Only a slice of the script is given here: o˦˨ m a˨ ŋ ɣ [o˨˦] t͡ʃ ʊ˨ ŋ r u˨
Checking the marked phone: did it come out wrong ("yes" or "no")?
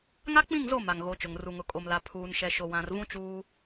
no